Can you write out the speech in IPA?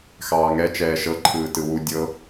x ɑː ŋ ɛ t͡ʃ ɛː ʃ ɤ ǃʰ ɯː t ɯ w u dʲ ɤ

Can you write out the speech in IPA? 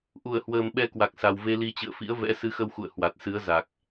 ʔ u˧˩ ə̯ h w əː˨˩ m ɓ ɛ˧ k w a˨˩ k̚ s a˨˩ w v e˧ l i˧ t͡ɕ ɨ̰˧˨ ə̯ f ḭ˧˥ ə̯ v ɛ̰˧˥ s ɨ˨˦ x ə˧ w x ṵ˧˨ ə̯ h w a˨˩ t̚ s ɨ˨˦ ə̯ z a˨˩ k̚

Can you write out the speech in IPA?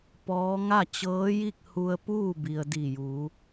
p ɔː˧˥ ŋ a˥˨ t͡ɕ ɤː˧˥ j i˥˨ k̚ h u˧ ə̯ p uː˥˨ b i˩ ə̯ d i˧˩ j uː˩˧

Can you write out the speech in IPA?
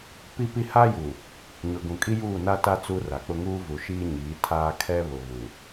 p i˦ p i˦ h a˦ j u˨ | ɲ ʊ˨ ɡ ũ˨ kʼ i˦ j uː˦˨ n a˦ t a˦ t͡s u˦ r a˨ k͡p ʊ˦ ŋ uː˦ v u˨ ʃ iː˦ ɲ iː˨˦ tʰ aː˦ kʰ ɛ˦ β ʊ˨ β u˨

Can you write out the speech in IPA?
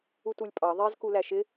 u t u lʲ pʼ ɑ ðˤ ɛ z k u l æ ʃ ɪ

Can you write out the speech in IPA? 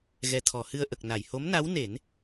ɣ ɛ˨˩ t̪ʰ ɔ˨˩˨ h ɨ˧ ə̯ ʔ ə˨˩ k̚ n a˨˩˨ j h o˧˥ m n a˧˥ w n e˨˩˦ n

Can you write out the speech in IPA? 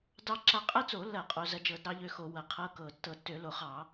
d ɑ˦ ǁ a˦ qʼ ɐ˦ t͡s o˧˩˧ lː ɐ˧˩˧ qʼ o˧˩˧ z ɐ˦ d͡ʒ ɤ˧˩˧ d ɾ ɑ˦ ʎ ø˦ x o˧˩˧ w ɐ˧˩˧ qʰ ɤ˦ k ɤ˧˩˧ tː ɤ˧˩˧ tː ø˧˩˧ l o˧˩˧ χ ɑ˧˩˧

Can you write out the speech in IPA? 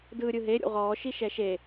d ɯː ɾʲ ɯ ɦ e ɾʲ ṵ ʁ ɔː ʃ i ʃ ɛ ʃ e

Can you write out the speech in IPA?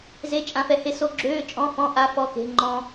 z e˧ t͡ʃʼ ã˧ f ɛ˧ h e˧ s o˧˥˧ ɡ͡ǁ øː˧˥˧ t͡ʃʼ ɔ̃˧˥˧ f ɔ̃˧˥˧ ʔ a˧˥˧ f ɔ˧˥˧ k e̤˧˥˧ ŋ͡ǃ ɔ̃˧

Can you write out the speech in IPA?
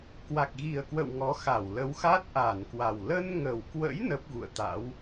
k w a˨˩ k̚ ɣ i˨˩ ə̯ k w ə̰˧˨ w ŋ ɔ˨˦ x a˧˩ w l ə˨˦ w x a˦˥ t̚ ʔ a˧˩ n k w a˨˩ w l ə˧ n ŋ ə˨˩ w k w ə̰˧˥ j n ə˦˥ p̚ ɣ ṵ˧˨ ə̯ t̪ a̰˧˥ w

